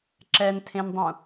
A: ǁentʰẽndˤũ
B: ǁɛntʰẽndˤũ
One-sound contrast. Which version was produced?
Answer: B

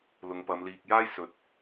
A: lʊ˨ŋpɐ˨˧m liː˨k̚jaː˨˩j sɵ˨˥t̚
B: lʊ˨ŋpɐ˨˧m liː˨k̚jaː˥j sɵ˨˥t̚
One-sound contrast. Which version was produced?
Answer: B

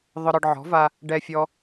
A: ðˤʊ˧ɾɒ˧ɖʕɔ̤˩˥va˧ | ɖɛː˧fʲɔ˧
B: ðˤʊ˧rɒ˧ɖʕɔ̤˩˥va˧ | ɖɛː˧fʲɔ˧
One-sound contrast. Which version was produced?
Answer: A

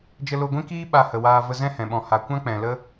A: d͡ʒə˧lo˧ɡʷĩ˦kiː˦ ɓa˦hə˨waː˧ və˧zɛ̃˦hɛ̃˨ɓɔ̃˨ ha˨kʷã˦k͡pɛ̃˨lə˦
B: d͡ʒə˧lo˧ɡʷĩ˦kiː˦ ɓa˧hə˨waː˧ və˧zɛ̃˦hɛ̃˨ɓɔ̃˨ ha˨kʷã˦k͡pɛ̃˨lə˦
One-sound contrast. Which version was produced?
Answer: B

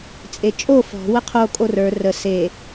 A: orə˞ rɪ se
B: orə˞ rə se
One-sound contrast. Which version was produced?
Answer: B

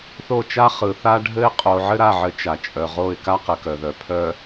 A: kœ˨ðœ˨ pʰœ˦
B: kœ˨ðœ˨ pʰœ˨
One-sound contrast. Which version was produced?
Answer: B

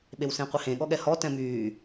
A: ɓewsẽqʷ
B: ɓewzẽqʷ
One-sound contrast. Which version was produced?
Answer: A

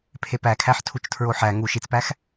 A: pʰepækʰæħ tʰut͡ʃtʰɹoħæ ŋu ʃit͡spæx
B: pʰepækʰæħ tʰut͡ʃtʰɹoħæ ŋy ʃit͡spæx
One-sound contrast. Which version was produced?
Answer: A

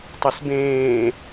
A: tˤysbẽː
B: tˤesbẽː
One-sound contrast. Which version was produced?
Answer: A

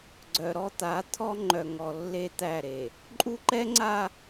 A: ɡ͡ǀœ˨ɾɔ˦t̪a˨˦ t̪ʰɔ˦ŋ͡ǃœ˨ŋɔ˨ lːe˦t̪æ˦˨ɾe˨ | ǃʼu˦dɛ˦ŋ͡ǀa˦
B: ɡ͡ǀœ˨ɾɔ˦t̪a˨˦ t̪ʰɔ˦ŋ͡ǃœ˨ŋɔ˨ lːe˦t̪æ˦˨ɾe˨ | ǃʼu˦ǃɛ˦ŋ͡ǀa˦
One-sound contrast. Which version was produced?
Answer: B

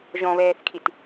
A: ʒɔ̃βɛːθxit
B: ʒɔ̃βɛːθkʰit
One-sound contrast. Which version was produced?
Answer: B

